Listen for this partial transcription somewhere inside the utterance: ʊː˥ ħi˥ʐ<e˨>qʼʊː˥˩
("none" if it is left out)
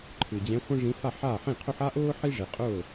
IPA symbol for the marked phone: e˨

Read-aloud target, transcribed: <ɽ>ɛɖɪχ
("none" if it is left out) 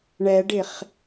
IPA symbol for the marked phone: ɳ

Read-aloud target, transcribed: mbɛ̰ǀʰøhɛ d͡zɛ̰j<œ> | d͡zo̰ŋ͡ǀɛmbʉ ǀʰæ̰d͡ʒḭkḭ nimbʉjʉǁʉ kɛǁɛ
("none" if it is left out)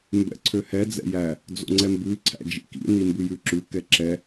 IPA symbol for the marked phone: æ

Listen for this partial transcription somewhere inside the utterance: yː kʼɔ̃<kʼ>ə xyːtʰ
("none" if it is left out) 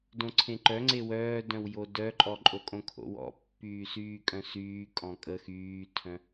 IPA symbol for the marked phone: kʼ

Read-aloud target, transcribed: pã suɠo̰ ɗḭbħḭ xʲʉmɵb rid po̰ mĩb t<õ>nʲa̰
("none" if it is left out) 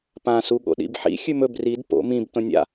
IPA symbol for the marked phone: õ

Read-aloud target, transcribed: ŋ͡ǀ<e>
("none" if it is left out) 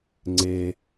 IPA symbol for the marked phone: e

